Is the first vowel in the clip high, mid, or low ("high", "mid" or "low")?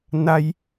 low